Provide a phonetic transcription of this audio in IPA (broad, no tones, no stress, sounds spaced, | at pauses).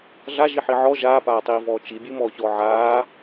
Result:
ɮ a ʒ i ħ i ʕ ɔ ʒ aː p aː tˤ iː v ɔː t͡ʃ i bʲ ɨ m ɔː ç ɔː ʕ aː